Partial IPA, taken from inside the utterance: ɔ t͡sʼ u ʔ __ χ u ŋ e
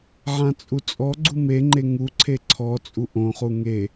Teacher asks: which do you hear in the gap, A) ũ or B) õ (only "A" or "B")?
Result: B